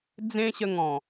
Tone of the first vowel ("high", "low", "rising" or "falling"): high